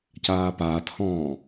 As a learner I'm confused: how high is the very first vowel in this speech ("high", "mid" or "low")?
low